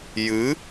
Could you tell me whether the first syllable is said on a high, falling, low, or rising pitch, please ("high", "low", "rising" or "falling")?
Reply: rising